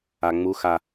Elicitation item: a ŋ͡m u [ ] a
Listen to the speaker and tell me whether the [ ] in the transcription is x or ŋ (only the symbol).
x